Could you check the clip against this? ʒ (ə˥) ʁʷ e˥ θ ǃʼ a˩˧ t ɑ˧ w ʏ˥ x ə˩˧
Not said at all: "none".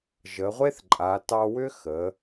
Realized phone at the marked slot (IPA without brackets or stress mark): ə˩˧